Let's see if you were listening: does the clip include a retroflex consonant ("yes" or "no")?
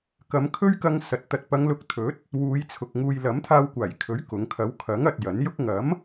no